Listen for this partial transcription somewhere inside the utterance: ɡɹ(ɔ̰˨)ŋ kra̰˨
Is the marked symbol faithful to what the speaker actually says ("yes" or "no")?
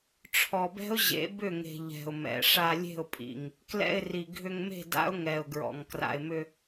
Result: yes